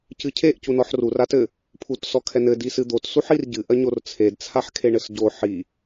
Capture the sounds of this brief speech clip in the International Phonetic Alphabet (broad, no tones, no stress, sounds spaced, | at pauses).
c ɨ cʰ e ʔ c u n ɔ ħ r u r a t ɘ | pʰ u t s ɔ kʰ ɛ n ɘ d i s ɨ d̪ o t s u ħ i r ɟ ɨ ʔ ɐ ɲ o r t͡sʰ e d t͡sʰ a ħ kʰ e ɳ ɘ s ɟ o ħ i